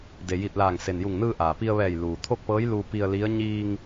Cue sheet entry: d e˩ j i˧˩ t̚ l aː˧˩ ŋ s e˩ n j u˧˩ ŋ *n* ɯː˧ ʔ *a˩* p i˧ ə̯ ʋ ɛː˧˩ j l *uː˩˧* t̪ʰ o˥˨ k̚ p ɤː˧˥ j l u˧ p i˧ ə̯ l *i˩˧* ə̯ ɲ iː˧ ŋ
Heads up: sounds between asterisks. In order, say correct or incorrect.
correct, incorrect: aː˩, incorrect: uː˩, incorrect: i˧˥

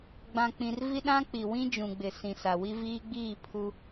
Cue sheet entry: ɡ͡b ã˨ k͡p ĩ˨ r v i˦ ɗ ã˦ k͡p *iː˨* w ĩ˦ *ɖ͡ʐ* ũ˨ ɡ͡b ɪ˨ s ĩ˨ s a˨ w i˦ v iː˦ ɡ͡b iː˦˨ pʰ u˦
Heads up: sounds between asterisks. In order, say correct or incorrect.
incorrect: i˨, incorrect: d͡ʒ

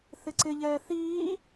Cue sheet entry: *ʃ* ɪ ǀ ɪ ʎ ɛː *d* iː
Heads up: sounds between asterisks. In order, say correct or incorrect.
incorrect: θ, incorrect: θ

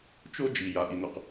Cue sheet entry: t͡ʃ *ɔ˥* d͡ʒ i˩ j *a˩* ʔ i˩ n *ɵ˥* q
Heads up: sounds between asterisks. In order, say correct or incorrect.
incorrect: o˥, correct, incorrect: ɵ˩

